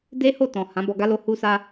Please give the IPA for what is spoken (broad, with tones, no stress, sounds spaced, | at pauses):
d e˦ h o˦˨ t ɔ̃˨ h ã˨˦ b ɔ˧ ɡ a˦ l o˦˨ h u˧ s a˧